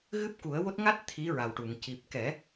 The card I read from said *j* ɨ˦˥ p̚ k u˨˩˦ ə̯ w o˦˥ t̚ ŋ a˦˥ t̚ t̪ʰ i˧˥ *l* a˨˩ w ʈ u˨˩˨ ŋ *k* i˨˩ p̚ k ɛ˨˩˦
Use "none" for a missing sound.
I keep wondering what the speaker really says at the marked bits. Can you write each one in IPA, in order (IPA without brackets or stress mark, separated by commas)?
ɣ, ɹ, c